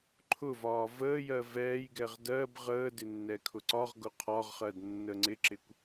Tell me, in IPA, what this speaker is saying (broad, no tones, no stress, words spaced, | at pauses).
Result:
ǃʰʊvɒː vəːjɜ vɛːjɡɛʁ dɜb ʁəːdɪ nːɛkʰʊǀɒʁɡʊ qʰɒʁχɜd nːəŋ͡ǀɪǁɪkʷ